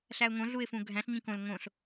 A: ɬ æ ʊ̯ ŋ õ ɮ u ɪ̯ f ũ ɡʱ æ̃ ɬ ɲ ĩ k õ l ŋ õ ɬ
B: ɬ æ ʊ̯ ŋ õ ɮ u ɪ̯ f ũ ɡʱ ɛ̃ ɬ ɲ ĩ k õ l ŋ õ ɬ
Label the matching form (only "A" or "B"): A